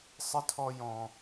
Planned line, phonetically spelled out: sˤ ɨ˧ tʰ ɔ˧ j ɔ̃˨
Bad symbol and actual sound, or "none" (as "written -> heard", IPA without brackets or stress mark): none